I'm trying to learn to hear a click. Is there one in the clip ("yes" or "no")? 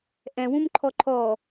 yes